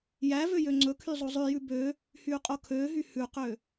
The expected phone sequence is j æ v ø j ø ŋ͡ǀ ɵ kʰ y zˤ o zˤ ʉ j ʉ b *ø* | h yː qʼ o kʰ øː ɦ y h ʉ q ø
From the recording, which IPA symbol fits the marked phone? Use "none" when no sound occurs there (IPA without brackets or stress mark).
ø